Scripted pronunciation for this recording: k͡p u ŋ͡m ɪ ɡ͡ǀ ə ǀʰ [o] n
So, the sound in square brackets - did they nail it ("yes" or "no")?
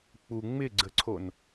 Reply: yes